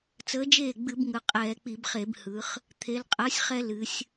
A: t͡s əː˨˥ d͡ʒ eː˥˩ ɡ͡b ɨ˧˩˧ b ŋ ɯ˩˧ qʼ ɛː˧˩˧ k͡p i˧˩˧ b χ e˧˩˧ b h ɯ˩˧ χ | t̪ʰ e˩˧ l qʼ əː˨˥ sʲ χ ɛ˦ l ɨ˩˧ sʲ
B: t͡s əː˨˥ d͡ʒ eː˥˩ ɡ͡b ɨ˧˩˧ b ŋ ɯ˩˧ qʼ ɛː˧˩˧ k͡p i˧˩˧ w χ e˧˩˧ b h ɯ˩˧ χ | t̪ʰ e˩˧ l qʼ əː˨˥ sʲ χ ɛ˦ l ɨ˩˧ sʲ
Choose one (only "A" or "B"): A